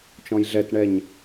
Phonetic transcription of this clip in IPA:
t͡ʃ ɔ̃ j ɮ ɛ t ɳ ɛ ɲ

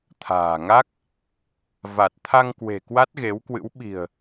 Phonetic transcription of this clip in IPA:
t̪ʰ a̤ː˨˩ ŋ a˦˥ k̚ | v a˨˩ t̚ t̪ʰ a˧ ŋ k w e̤˨˩ k w a˦˥ t̚ ɣ e˨˦ w k w ɨ̰˧˥ w ɓ i̤˨˩ ə̯

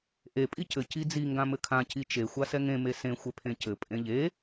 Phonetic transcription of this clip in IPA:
ʔ e pʼ i c ɘ c i d͡z i ŋ ɡ ã m ɘ kʰ ã c i t͡ʃ e xʷ a s ɛ ŋ ẽ m e s ẽ xʷ ɛ pʰ ẽ c ɘ pʼ ẽ ʎ e

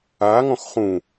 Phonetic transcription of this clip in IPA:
a ŋ ɔ̃ x χ ũ

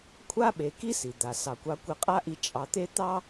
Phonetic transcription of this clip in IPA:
kʷʰ a˥ ɓ e˨ k i˥ s i˩ d̪ a˩ s ɑ˩ kʷ ɑ˨ kʷ e˨ qʼ a˦ ʔ i˨ t͡ʃʼ ɑ˨ t̪ e˦ t̪ ɑ˥

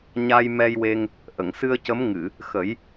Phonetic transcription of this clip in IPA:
ɲ a˧ j m ɛ˧ j w e˧ ŋ | ʔ ə˨˩˨ ŋ s ɨ˧ ə̯ c ə˧˥ m ŋ ɨ˨˩˨ | x ə˨˩˦ j

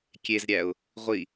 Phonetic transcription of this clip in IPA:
kʲ e z ɾʲ æ ʊ̯ | ʁʷ i

